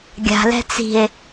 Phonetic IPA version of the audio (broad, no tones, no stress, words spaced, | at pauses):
ɡʲa̤lɛ̤ t͡si̤e̯